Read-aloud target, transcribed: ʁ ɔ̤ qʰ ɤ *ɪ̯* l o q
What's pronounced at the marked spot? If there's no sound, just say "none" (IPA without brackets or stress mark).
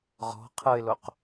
ɪ̯